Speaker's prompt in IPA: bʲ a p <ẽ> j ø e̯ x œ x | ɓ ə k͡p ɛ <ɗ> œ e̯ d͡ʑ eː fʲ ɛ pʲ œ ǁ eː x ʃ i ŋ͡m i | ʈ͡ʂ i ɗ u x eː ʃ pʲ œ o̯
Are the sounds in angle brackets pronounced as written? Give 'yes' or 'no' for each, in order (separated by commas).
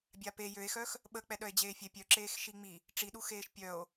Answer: no, yes